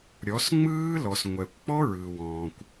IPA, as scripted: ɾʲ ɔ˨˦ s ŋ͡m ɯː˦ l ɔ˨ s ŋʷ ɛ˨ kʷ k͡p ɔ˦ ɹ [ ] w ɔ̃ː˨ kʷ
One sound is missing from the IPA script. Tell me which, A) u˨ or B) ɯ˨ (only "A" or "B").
B